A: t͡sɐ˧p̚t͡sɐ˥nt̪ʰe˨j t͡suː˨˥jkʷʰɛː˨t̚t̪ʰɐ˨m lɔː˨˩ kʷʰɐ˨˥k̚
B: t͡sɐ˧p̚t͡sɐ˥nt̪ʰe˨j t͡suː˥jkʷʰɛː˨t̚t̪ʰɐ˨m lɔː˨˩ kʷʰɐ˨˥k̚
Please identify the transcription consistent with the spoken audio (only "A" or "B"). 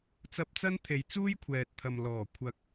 B